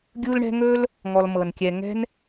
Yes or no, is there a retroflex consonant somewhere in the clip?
yes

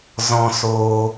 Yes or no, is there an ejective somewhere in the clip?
no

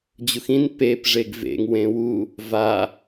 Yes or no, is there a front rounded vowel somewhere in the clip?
no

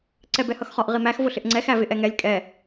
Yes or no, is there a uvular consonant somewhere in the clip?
yes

